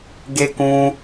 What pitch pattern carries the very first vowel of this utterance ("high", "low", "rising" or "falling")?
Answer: high